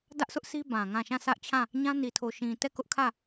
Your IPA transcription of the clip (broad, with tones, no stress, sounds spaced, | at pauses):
d ä˦ ʔ s ʊ˦ ʔ s i˦ b ã˨ ŋ ã˦˨ ʃ ã˦˨ s ä˦ ʔ t͡ɕʰ ã˦˨ | ɲ ã˦ n i˨ tʰ o˨ ʃ ĩ˨ t ɛ˦˨ k ʊ˦ ʔ kʰ ä˦˨